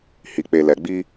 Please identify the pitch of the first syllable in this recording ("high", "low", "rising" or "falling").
low